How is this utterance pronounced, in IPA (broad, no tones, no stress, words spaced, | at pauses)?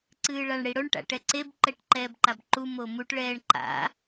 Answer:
ǀɨːɭaɳɽiɽoɳ ʈa̰ʈɛǀeb ǃɛʈǃɛːbǃabǃu momuʈ ɭɛːɳǃa̰